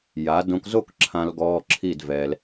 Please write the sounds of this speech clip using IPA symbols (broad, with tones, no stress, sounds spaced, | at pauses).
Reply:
j a˩˧ d õ˧ k z o˥˧ k ǁʰ ã˧ l ɡ ɔː˧ ǁʰ i˥˧ d v ɛ˧ l